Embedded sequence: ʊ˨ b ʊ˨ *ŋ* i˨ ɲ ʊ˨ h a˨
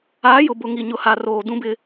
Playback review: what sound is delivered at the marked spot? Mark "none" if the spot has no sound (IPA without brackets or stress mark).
ŋ